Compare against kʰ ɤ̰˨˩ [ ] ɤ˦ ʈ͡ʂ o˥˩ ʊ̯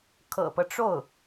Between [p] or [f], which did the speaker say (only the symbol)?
p